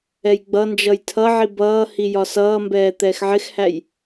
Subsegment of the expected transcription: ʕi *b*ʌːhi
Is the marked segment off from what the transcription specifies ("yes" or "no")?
no